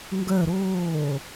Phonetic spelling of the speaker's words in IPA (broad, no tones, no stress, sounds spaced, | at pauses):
ŋ ɡ œ ɾ oː